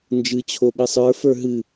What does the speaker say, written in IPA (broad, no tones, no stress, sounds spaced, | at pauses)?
n d͡ʒ ɨ t͡ɕʰ o ɓ ɨ sˤ ə˞ f ə˞ ɦ ɨ